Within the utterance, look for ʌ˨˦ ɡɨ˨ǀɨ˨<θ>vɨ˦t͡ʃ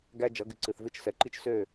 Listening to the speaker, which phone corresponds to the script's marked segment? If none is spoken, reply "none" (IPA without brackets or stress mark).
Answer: θ